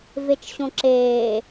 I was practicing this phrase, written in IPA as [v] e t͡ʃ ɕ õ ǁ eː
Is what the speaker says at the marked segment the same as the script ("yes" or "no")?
yes